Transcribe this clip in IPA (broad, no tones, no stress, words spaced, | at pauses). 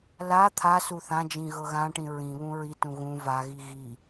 la t̪ʰasu θãd͡ʒĩ ɣɤɣãʈĩ ɹĩβũ ɹitũ ɣũ vaɣi ɣi